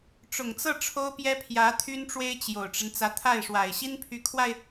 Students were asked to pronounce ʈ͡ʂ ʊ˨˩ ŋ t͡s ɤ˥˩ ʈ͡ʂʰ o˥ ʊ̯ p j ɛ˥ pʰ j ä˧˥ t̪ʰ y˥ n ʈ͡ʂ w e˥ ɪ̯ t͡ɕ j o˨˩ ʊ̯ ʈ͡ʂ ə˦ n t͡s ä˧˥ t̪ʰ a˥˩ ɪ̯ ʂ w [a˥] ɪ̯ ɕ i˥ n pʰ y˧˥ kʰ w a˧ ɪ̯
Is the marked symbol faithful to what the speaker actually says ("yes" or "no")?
no